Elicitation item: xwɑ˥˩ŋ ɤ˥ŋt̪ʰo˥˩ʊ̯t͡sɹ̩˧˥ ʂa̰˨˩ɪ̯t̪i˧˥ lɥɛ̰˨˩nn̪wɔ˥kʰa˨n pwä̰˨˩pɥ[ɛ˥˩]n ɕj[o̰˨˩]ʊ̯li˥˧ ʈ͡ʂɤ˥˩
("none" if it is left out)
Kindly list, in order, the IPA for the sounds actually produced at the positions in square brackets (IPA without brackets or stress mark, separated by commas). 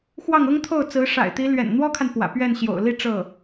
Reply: ɛ˥˩, o̰˨˩